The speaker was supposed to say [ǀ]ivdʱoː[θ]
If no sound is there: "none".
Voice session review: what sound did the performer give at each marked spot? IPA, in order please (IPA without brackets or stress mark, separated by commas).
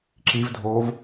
ǁ, v